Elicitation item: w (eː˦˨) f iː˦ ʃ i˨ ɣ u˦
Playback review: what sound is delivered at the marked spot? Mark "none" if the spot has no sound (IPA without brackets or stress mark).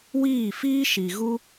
iː˦˨